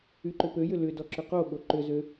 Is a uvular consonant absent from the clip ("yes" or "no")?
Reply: no